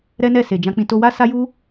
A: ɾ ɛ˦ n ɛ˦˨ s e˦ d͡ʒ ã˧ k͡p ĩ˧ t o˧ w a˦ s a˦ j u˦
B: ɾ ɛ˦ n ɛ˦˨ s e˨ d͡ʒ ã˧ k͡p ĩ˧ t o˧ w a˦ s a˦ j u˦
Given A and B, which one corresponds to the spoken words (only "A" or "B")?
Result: B